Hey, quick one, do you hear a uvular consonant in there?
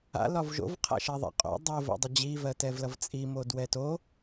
yes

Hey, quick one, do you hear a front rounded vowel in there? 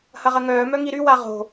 yes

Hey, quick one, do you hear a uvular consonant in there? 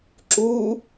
no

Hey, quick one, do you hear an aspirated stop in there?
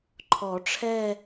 yes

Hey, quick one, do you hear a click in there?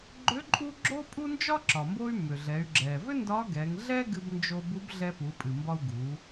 yes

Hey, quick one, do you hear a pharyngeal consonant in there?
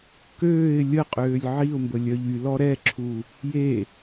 yes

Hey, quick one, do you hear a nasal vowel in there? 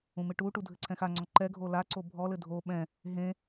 yes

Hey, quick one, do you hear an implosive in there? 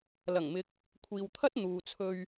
no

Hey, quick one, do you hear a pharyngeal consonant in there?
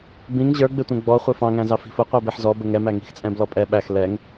yes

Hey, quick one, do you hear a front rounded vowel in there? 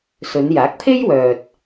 yes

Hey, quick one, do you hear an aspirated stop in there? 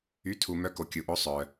yes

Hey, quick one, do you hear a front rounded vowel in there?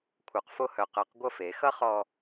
yes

